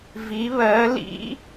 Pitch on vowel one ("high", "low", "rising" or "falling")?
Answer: rising